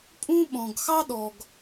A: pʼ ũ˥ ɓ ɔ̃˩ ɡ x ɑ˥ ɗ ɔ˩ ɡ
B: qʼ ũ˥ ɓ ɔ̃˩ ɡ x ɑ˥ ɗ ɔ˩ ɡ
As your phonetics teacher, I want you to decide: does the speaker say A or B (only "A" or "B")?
A